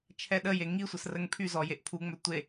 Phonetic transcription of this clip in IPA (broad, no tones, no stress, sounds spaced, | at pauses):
t͡ʃʰ ɛ ɗ ə j e ŋ i sʷ ə s r ə ŋ pʰ y z ɔ j e ʔ pʰ u ŋ͡m œ tʷ e